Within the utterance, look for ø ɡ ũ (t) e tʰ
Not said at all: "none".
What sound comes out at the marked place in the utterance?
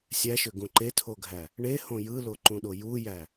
ǃ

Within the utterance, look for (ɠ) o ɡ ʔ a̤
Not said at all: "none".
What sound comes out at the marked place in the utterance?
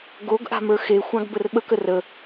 ɡ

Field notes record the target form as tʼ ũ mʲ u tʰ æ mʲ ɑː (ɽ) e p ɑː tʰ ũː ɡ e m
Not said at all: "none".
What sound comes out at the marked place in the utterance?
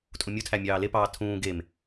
l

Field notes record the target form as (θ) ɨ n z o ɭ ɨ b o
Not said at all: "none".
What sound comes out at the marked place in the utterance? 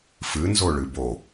f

